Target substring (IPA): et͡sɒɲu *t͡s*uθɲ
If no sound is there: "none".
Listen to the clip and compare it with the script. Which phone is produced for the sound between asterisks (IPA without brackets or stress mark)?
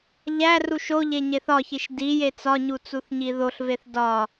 t͡s